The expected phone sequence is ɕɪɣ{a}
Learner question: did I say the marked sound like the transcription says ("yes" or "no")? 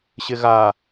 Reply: yes